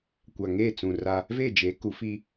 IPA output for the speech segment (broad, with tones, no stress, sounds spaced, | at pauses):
kʷ a˨ ŋ eː˦˨ t͡s ũ˨ r a˦ | v e˦˨ d͡ʒ e˨˦ k u˨˦ f i˦